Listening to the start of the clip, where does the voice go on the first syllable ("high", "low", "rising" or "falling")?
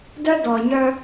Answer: high